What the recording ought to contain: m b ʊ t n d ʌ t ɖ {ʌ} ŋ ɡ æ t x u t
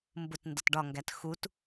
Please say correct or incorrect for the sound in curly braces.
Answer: incorrect